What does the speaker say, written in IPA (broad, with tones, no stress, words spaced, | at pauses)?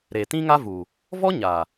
ɾe˨ tĩ˦ŋa˦vu˨ | vɔ˦ ɲa˨